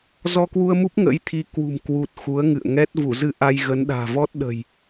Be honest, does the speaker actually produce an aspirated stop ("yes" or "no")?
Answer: yes